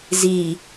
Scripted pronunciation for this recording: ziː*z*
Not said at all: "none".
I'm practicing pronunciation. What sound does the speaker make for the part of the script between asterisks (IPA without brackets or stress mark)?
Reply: none